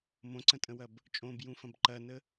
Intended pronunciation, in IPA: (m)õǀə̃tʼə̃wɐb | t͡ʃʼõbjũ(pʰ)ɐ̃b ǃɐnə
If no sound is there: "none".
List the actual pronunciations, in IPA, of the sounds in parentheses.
m, f

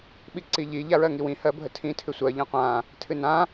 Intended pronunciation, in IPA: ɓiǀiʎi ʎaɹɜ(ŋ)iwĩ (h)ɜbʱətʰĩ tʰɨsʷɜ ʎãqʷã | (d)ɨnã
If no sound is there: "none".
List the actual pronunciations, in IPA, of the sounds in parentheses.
ŋ, h, tʰ

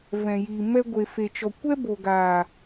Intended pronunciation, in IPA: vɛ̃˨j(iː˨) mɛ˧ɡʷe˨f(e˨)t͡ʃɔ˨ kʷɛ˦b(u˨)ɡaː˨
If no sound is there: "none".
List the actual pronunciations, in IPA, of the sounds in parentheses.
i˨, e˨, o˨

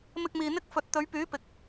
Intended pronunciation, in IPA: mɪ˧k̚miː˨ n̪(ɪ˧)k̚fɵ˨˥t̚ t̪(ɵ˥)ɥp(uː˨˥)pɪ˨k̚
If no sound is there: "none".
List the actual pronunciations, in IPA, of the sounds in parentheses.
ɪ˥, ɵ˨˧, yː˨˥

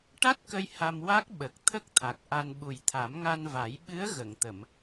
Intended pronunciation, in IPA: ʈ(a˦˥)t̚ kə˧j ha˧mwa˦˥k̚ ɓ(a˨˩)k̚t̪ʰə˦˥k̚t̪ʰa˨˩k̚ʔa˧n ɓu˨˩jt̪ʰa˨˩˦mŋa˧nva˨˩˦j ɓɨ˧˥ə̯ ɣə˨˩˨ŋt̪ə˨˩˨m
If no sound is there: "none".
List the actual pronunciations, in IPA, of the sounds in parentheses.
a˦˥, ə˨˩

